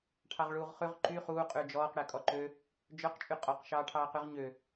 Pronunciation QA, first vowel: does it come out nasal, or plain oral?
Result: oral